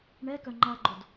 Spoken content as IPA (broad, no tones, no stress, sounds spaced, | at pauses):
ɳ ɛ k œ ŋ͡ǃ a ɡ͡ǃ o d